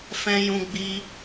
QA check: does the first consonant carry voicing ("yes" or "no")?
no